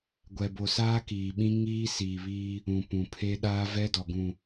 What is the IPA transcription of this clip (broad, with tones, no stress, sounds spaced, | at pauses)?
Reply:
ɡʷ ɛ˨ b o˨ s aː˦ k iː˨ ɓ ĩ˦ ŋ iː˦ s iː˨ β iː˦ | ũ˨ p ũ˨ pʰ e˦ ɗ aː˦ v ɛ˦ d ɔ˨ ɡ ũ˨